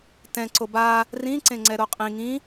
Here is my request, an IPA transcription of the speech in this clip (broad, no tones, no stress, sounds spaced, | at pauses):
t ɛ̃ ǀ o b a | r ĩ ǀ ẽ ŋ͡ǀ ɛ ɾ o qʼ ĩ ŋ ĩ